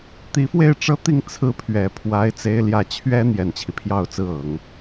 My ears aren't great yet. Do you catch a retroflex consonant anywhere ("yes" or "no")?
yes